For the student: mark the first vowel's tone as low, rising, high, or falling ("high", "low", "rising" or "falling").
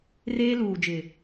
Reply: high